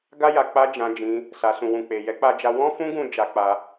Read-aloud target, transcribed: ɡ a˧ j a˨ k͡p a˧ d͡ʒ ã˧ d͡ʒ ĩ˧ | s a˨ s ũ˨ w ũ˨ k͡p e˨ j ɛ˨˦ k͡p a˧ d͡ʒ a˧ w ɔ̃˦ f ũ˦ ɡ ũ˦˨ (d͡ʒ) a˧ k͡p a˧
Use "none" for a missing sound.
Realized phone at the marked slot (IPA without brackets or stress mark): d͡ʒ